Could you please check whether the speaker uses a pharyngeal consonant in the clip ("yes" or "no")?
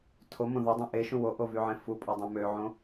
yes